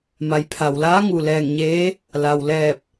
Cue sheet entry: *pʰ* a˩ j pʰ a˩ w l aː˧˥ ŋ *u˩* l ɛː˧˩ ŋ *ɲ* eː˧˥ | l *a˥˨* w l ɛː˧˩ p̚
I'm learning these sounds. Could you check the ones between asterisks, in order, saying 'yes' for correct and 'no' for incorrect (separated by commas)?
no, yes, yes, no